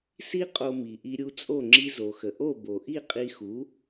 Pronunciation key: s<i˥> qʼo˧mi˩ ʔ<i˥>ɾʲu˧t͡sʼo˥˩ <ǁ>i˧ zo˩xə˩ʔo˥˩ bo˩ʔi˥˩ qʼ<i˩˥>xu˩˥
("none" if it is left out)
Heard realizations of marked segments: i˥, i˧, ŋ͡ǁ, i˧

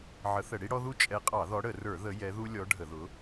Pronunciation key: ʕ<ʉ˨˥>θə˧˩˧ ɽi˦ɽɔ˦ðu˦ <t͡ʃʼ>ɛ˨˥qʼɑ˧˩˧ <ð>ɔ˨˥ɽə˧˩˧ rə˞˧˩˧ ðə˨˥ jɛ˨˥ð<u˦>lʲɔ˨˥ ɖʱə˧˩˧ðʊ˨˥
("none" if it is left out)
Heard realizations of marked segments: ə˨˥, t͡ʃʼ, ð, u˦

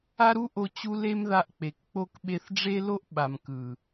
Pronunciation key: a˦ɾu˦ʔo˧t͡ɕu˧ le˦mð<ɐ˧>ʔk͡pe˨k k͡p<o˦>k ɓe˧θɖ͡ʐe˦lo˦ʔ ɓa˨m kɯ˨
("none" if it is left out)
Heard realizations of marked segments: a˧, o˦

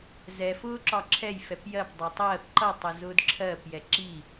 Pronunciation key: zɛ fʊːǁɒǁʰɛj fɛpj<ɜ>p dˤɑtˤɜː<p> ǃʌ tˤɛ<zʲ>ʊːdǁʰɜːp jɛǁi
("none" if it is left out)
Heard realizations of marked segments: ɜ, p, z

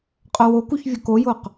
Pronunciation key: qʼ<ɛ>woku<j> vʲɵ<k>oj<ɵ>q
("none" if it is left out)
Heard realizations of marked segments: œ, ç, k, o

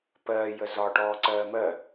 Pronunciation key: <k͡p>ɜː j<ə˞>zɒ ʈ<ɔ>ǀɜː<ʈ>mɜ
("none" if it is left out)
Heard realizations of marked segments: p, ə, ɔː, none

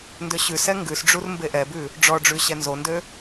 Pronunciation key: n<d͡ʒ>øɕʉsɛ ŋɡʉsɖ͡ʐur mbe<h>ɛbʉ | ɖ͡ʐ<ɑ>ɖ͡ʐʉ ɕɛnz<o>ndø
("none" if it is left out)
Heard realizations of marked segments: d, ʔ, ɔ, o

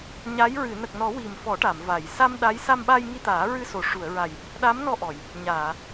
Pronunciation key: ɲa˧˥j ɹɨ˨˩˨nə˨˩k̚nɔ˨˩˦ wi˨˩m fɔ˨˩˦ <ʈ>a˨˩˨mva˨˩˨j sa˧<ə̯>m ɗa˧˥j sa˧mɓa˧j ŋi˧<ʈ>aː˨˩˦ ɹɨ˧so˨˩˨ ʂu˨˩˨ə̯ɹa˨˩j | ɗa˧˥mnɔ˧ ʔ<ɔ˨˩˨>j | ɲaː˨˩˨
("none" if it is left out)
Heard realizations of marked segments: ʈ, none, t̪, ɔ˨˩˨

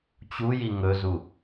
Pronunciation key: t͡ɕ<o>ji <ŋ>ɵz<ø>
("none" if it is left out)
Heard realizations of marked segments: u, ŋ, u

